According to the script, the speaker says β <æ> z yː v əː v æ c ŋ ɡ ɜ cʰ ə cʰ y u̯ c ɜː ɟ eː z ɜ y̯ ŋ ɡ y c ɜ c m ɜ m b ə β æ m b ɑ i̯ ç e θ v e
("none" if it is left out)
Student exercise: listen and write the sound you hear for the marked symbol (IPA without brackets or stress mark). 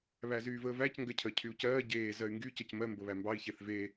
æ